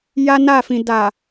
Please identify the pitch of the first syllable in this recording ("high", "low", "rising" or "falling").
high